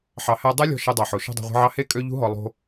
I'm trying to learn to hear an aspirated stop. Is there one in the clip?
no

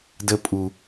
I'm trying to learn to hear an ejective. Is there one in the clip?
yes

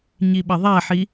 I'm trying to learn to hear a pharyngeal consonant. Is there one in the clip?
yes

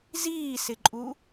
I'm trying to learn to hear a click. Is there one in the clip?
yes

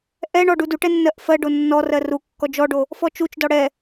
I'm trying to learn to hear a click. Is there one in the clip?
no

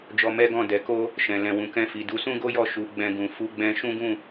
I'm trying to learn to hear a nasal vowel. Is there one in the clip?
yes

